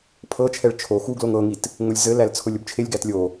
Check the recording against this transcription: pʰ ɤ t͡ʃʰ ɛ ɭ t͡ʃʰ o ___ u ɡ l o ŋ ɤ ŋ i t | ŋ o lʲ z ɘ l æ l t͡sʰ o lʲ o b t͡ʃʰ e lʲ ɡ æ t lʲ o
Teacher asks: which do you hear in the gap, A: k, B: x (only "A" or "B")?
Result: B